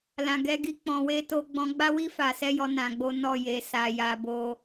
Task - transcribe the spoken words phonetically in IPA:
l ã˨ ɡ ɛ˧ ɡ i˦ k͡p ɔ̃˧ w e˦ t o˧ ɡ͡b ɔ̃˧ ɡ͡b a˦ w i˦ f a˧ s ɛ˦ j ɔ˦ n ã˧ ɡ͡b o˦ n ɔ˦˨ j e˧ s a˧ j a˧ b o˦

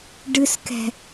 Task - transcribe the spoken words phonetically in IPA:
ɖ ɨ s k ɛ̤

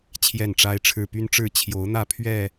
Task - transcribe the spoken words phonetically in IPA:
t͡ɕʰ j ɛ˥˨ n ʈ͡ʂ a˦ ɪ̯ ʈ͡ʂʰ ɻ̩˥˨ p y˦ n ʈ͡ʂ ɻ̩˥˨ t͡ɕʰ j o˨˦ ʊ̯ n̪ ä˥˨ pʰ ɥ ɛ˥˨

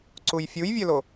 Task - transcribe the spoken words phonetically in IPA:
ǀ u j fʲ u j vʲ œ l o

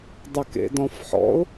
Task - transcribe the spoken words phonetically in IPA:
dˤ ə k ḛ d ɔ̃ f ħ ɔ̰ ʊ̯

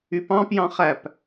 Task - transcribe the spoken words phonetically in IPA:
y p ɑ̃ p j ɑ̃ χ æ p

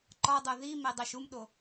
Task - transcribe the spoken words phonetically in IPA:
ǃ ɒ dˤ o ð i m e dˤ æ ʃ u m ɗ o

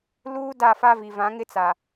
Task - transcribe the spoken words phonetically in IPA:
l uː˦ d a˦˨ f a˦ v i˨ v ã˨˦ ŋ ɪ˦ t͡s a˨

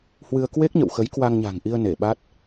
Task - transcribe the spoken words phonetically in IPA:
h w ɨ˧ ə̯ k w e˦˥ k̚ ɲ ə̰˧˨ w x ə˨˦ j k w a˧ ŋ ɲ a̤˨˩ ŋ ʔ i˧ ə̯ n e˧˩ ɓ a˦˥ t̚

